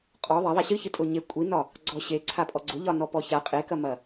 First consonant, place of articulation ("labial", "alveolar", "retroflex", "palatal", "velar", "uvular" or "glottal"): uvular